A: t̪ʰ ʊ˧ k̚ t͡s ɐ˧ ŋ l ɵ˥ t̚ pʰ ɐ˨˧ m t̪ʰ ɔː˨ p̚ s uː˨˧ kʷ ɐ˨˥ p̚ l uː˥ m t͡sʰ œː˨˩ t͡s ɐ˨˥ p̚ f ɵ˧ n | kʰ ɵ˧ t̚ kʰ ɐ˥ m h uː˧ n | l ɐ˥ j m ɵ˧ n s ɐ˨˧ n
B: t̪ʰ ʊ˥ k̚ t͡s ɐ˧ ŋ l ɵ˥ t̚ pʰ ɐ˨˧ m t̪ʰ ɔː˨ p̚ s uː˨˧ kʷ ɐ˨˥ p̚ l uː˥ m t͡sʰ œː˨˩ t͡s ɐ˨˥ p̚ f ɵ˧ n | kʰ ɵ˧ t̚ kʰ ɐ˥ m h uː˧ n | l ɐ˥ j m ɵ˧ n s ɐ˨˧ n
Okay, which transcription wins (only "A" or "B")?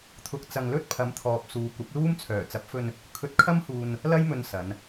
A